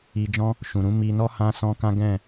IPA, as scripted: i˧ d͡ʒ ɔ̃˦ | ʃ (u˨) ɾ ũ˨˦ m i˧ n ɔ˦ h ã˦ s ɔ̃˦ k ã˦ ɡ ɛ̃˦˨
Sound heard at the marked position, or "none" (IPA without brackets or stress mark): ũ˨